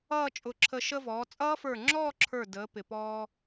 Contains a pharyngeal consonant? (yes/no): no